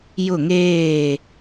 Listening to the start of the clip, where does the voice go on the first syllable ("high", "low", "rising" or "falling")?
falling